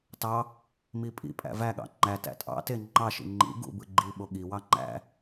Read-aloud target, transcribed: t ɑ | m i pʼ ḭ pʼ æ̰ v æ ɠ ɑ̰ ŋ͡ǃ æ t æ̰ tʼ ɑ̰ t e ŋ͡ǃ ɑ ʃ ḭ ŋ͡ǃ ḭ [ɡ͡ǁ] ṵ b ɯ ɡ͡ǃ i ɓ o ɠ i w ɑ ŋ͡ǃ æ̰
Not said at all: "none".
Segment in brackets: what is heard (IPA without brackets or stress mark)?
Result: ɡ